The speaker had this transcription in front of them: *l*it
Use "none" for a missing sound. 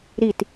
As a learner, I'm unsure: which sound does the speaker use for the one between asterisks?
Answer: ɾ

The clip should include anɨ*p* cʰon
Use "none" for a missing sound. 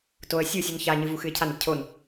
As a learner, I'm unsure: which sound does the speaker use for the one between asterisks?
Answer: p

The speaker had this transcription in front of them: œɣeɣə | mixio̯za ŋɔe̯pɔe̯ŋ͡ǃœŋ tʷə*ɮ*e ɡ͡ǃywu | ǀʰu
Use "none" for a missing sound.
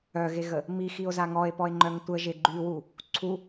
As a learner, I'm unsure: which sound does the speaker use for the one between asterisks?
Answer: ʒ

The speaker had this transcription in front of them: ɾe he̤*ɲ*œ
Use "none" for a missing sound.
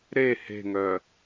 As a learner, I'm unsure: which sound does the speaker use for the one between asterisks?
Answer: ŋ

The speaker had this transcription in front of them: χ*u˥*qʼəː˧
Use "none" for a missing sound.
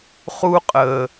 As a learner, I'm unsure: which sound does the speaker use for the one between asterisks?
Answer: u˥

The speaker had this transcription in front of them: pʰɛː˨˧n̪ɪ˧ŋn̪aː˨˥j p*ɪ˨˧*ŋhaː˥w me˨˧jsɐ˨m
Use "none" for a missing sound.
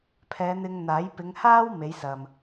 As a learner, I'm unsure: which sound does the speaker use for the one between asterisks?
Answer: ɪ˨˧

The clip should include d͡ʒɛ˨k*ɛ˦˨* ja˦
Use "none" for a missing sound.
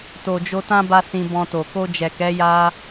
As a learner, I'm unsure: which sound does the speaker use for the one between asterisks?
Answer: ɛ˨˦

